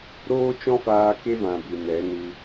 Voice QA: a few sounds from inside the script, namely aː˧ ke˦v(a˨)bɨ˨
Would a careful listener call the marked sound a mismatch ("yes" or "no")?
yes